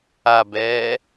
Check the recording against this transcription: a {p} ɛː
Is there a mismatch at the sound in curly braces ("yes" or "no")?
yes